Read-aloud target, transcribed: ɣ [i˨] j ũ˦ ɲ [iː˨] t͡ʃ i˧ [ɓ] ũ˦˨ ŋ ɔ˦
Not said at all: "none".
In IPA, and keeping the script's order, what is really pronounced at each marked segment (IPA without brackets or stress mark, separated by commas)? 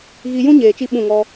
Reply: i˧, eː˨, ɓ